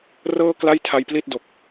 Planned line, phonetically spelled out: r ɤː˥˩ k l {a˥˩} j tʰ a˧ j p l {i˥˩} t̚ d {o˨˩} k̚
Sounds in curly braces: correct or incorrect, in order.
correct, correct, correct

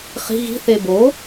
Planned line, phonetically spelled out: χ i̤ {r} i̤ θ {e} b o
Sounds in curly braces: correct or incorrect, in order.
incorrect: ɣ, correct

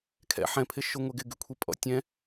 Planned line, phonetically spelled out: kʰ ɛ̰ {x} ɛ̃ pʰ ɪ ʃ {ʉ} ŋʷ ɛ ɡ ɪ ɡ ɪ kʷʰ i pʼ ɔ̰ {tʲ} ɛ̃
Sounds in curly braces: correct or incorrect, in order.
incorrect: ħ, incorrect: ʊ, correct

